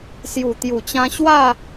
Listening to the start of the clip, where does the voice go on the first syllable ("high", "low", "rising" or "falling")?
low